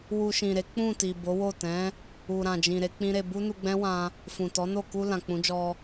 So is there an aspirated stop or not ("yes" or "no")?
no